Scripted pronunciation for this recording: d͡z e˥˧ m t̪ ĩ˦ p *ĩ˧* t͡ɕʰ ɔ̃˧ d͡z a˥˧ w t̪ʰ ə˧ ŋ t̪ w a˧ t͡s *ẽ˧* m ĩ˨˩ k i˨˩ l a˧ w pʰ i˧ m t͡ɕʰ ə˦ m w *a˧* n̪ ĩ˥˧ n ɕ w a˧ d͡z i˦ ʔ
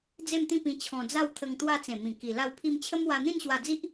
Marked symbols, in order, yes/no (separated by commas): yes, no, yes